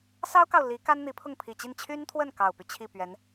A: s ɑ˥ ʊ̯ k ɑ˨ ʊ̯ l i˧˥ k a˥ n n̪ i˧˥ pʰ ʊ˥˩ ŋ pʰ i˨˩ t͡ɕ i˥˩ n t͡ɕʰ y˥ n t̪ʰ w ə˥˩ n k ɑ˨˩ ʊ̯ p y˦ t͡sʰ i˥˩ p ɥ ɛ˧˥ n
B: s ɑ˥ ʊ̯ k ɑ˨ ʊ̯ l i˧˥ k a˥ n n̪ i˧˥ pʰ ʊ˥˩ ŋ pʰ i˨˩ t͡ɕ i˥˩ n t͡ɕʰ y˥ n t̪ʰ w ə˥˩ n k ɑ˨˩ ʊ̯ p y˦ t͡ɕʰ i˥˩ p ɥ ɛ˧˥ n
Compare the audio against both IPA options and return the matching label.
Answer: B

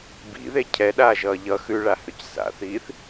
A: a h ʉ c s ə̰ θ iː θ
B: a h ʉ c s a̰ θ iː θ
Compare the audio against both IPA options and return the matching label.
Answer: B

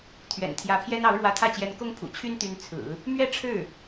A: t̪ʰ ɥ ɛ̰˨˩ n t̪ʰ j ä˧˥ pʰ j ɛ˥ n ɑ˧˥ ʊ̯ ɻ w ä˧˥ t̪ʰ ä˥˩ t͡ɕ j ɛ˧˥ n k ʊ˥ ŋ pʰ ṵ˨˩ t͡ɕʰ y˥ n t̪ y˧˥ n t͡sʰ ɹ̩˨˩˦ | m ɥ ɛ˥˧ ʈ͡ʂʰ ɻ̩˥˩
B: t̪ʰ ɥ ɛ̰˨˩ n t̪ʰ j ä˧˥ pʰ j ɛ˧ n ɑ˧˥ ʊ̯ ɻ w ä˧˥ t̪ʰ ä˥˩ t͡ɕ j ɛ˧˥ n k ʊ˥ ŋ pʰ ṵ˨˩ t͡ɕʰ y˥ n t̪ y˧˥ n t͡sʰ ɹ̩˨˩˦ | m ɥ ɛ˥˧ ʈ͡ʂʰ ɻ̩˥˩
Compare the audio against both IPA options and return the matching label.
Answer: A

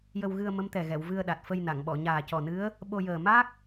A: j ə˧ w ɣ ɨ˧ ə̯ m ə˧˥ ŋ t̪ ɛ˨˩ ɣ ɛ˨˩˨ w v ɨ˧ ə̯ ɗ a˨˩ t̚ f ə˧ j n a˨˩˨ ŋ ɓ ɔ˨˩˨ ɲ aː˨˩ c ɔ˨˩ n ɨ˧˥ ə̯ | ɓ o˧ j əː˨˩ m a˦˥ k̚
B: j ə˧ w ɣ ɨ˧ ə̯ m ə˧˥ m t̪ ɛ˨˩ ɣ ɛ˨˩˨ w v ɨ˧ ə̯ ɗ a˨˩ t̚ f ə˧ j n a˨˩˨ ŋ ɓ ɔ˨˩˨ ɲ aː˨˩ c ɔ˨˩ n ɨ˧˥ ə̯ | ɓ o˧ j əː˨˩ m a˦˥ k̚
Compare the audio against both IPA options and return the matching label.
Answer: B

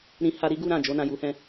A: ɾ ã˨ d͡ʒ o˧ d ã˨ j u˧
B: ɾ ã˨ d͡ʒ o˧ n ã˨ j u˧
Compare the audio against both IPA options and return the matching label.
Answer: B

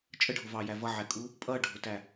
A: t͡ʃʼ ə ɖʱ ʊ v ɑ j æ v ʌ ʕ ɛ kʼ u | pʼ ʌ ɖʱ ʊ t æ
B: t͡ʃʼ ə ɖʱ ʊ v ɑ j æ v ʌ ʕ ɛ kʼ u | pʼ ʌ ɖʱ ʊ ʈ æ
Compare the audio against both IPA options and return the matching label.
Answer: A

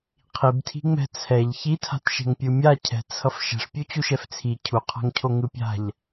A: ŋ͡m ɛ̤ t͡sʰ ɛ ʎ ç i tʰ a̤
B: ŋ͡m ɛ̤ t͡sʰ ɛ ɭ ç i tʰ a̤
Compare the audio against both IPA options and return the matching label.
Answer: A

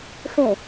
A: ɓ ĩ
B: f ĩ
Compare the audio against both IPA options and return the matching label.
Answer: B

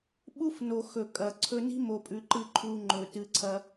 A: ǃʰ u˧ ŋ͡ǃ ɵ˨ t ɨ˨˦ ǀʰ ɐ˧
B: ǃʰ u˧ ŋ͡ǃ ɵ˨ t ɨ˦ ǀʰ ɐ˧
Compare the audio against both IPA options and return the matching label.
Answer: A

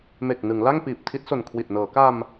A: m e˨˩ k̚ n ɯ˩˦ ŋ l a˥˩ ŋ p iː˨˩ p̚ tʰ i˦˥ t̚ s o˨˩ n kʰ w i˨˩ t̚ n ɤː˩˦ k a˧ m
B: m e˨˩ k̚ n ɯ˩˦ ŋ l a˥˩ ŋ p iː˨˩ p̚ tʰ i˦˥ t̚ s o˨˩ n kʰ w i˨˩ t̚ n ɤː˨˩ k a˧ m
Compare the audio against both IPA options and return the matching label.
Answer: A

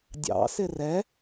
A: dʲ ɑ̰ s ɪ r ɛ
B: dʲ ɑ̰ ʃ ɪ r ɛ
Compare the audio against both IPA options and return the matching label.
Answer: A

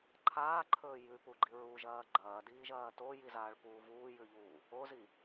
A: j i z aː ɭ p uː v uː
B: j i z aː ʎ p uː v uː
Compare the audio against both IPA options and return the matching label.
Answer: A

